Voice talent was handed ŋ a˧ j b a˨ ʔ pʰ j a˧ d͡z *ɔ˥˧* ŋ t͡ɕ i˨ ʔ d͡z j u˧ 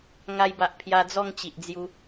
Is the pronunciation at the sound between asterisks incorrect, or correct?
correct